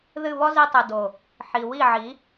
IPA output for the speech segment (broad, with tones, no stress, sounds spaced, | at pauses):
ð ɨ˦˨ β ɔ˦ z i˧ tˤ ɨ˨ d o˨ | ħ i˨ w i˦˨ ʕ i˨˦